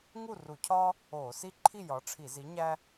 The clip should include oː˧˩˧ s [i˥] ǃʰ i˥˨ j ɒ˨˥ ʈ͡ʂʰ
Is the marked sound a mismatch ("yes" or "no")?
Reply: no